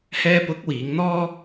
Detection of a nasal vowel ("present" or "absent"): absent